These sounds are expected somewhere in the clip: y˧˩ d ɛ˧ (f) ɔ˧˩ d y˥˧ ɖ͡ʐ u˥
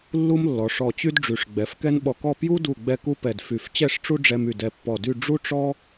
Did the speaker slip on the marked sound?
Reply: yes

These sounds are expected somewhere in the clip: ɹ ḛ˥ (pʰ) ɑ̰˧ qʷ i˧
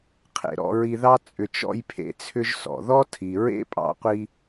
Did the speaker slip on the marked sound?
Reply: yes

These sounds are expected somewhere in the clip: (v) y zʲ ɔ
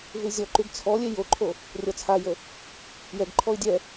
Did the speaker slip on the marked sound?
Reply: no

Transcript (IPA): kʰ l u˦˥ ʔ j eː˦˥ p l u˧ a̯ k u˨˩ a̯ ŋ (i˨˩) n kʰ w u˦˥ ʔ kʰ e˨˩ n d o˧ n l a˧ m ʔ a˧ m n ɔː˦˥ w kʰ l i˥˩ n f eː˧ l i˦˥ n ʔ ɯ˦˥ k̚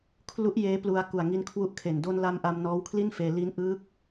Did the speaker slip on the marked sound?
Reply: yes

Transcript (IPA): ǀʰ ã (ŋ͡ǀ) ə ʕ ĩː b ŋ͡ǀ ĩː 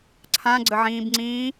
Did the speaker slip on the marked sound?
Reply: yes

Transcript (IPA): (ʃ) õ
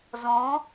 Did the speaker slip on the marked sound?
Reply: yes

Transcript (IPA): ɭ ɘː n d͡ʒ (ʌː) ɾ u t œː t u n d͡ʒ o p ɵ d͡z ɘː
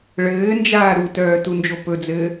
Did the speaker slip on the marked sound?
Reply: yes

